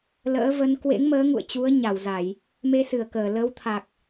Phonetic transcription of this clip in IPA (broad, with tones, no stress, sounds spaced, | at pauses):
l ə̰ː˧˥ v ə˨˦ n k w ḛ˧˥ ŋ m əː˨˦ ŋ ṵ˧˨ ə̯ t͡ɕ u˨˦ ə̯ ɲ a˧˩ w z a˧˩˨ j | m e˧ s ɨ˧˩ ə̯ k əː˧˩ l ə˨˦ w t̪ʰ a˨˩ k̚